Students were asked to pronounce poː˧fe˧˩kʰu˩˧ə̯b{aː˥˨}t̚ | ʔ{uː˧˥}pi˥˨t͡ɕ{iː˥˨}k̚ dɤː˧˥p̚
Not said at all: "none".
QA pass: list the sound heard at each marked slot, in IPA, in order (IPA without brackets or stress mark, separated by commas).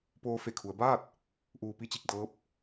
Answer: aː˥˨, uː˧, i˥˨